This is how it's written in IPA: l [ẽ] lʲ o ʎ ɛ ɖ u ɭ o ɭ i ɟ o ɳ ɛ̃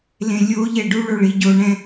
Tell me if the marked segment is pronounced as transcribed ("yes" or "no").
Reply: yes